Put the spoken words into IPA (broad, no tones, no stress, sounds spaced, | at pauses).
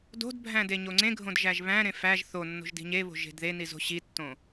d o̤ d bʱ æ̃ d e ɲ o ŋ͡ǀ ẽ ɡʱ õ d ʒ æ ʒ β æ̃ ɾ ẽ f æ ʒ θ o nː o̤ ʒ d i̤ ɲ e β o̤ ʒ e̤ d ð e n i z o̤ ɕ i tː õ